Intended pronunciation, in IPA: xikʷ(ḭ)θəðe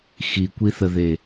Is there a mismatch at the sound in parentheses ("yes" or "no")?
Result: yes